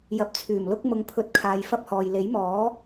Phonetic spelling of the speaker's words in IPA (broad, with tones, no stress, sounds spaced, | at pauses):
j ɐ˨˥ p̚ t͡sʰ yː˨˩ m l ʊ˥ k̚ m ʊ˨˧ ŋ pʰ ɵ˧ t̚ kʰ aː˨ j f ɐ˥ p̚ h ɔː˨ j l e˨˥ j m ɔː˨˥